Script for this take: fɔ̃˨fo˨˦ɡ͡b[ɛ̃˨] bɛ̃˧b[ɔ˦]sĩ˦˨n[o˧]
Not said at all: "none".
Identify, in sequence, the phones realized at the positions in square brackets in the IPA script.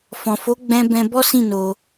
ɛ̃˧, ɔ˦, o˧

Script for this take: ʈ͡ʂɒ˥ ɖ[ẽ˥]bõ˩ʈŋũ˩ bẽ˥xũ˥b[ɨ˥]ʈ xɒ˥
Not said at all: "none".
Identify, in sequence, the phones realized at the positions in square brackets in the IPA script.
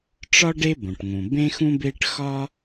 e˥, e˥

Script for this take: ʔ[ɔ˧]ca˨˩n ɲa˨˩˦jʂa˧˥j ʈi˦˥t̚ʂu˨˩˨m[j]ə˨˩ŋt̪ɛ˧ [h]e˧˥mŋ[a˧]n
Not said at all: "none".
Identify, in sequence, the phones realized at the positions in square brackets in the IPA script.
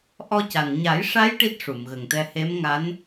ɔ˧, ɣ, h, a˧˥

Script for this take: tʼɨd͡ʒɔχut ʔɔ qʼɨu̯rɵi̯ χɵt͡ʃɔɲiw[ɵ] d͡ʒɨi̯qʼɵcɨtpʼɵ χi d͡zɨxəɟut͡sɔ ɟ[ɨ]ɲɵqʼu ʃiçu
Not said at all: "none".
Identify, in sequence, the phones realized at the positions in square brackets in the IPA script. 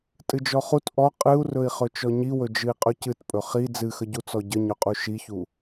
ɵ, ə

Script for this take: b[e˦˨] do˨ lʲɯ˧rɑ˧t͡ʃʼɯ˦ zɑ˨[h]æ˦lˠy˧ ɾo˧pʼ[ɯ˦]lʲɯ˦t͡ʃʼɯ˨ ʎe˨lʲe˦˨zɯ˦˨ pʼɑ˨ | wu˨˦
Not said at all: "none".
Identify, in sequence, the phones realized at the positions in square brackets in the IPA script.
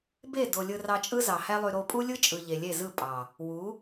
e˦˨, h, u˦

